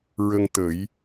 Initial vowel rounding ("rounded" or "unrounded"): unrounded